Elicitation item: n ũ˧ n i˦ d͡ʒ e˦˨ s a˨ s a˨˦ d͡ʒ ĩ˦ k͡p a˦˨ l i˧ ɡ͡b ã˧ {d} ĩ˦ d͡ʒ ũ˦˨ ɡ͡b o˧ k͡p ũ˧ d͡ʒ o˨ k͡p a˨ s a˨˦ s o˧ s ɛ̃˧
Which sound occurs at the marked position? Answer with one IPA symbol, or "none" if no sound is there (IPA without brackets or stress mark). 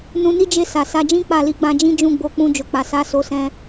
d͡ʒ